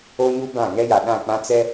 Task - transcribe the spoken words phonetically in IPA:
o˦ ɲ u˦ b ã˦˨ ŋ ɛ˦ j a˨ ɗ ã˦˨ k͡p ã˦ t͡s ɛ˦

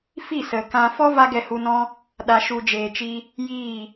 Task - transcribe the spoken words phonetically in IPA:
f i˦˨ s ə˨ k ã˧ f ɔ˦ v a˧ ɡ ɛ˨ h u˨ n ɔ̃˧ | ɗ a˨ ʃ u˨ d͡ʒ eː˨ t͡ʃ i˧ | j iː˦˨

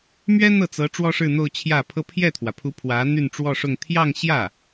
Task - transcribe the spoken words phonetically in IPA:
m ɥ ɛ˥ n̪ ɤ˥˩ t͡s ɤ˧˥ ʈ͡ʂ w ɔ˥ ʂ ɻ̩˥˧ n̪ o˥˧ ʊ̯ t͡ɕʰ j ä˥˩ pʰ ɤ˥ pʰ j ɛ˥˩ t̪ʰ w ä˩ pʰ u˧˥ pʰ w ä˧˥ n̪ y˥˧ n ʈ͡ʂ w ɔ˥˧ ʂ ʊ˥˧ ŋ t̪ʰ j ɑ˥˧ ŋ ɕ j ä˥˩

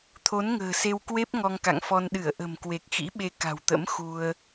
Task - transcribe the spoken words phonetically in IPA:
t̪ʰ o˨˦ n ŋ ə̤ː˨˩ s e˧ w k w e˦˥ p̚ ŋ ɔ˧ ŋ k a̰˧˨ ŋ f ɔ˧ n ɗ ɨ˧˩ ə̯ ʔ ə̤˨˩ m k w e˨˩ k̚ x ḭ˧˥ ɓ e˨˦ k a̤˨˩ w t̪ ə̰˧˥ m x u˧ ə̯

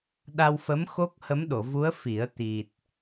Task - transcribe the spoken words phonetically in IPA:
ɗ a˧ w f ə˧˥ m x o˦˥ k̚ h ə˧˥ m ɗ o˨˩˨ v u˧˥ ə̯ f i˨˩˦ ə̯ t̪ i˨˩ t̚

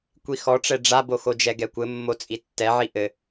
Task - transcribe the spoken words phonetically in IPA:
kʷ i x ɔ ʈ͡ʂ ɛ ɖ͡ʐ a b o x o d͡ʒ ɛ ɡ ɛ kʷ ɘ mː o t͡sʼ i tː ɛ ʕ i ʔ ɘ

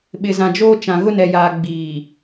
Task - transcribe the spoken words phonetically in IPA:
ɓ ɪ˨ z ã˨ d͡ʒ oː˦ t͡ʃ ã˨ ɣ ʊ˦ n ɛ˨ j aː˨ ɡ͡b iː˨

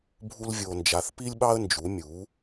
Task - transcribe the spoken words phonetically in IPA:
bʱ u˥ l vʲ o˧ n d͡ʒ a˧ θ p i˥ lʲ ɓ ɑ˥ ə̯ n d͡ʒ u˩˥ mʲ u˩˥

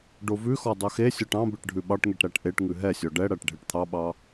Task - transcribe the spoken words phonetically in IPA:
ɖ o v ʉ x ɔ dˤ œ x e sʲ ɔ ʈ ɑ̃ b e ʈ ɖʱ ʉ ɓ ɑ ʈ ŋ e ʈ ɾ æ ʈ ʔ e ʈ ŋ ʉ ɦ ɛ sʲ ɔ ɖ ɛ ɽ æ ʈ ɖʱ e ʈ t̪ʰ ɑ ɓ ɑ

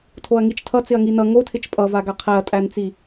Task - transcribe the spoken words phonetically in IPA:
tʰ o ɐ̯ ŋ i t͡ʃ tʰ ʌ t͡s ɪ ɐ̯ ŋ i n ʌ ŋ o tʰ ɪ t͡ʃ pʼ ʌ v a ɡ a qʰ æ ɐ̯ tʼ æ n t͡s i

